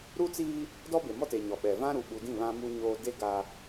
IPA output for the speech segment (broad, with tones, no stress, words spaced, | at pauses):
ɾu˦t͡siː˦ | dɔ˦be˨mɔ˦te˨ ɲɔ˨ɓɛ˨ vã˦ɾu˨ɓu˨dĩ˦˨ βã˦mu˦ɲoː˦ de˦ ɡa˦